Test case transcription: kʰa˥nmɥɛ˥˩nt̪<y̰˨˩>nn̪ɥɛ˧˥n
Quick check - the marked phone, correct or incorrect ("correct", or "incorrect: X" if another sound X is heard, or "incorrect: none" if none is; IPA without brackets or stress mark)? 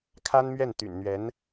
correct